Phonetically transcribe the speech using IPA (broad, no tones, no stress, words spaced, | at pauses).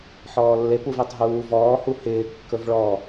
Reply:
ħɔːlːep uvetˤɦuːvɔː huhɪː kːɵvɭɔ